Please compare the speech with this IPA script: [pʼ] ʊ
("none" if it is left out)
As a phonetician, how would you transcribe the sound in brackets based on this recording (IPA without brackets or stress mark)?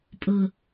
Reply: pʼ